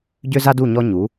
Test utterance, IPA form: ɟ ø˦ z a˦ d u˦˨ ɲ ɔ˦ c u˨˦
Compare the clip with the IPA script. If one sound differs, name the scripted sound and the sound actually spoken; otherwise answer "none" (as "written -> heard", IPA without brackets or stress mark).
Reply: c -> ɲ